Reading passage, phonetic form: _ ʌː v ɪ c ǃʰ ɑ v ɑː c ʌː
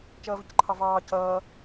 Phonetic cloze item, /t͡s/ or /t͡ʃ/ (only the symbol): t͡ʃ